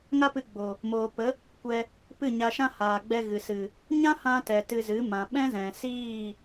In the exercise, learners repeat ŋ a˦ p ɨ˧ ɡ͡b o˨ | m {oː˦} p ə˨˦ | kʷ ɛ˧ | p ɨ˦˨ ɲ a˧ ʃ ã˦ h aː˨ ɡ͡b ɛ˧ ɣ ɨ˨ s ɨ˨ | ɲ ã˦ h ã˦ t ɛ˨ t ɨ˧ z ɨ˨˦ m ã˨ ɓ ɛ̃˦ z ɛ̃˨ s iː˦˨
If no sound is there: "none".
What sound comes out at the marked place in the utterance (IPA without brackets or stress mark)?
oː˨